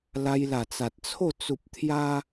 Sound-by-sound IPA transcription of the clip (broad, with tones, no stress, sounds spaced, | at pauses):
l a˧ j l a˨˩ t͡s a˨ t̚ t͡sʰ o˥˧ t͡s u˨ p̚ t̪ʰ j a˧